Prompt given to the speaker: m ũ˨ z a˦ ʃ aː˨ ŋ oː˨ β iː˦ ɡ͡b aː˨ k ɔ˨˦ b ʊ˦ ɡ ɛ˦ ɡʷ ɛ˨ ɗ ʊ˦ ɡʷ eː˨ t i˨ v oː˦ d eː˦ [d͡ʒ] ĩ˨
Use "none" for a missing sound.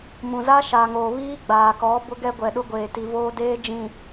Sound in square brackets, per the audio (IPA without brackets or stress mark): d͡ʒ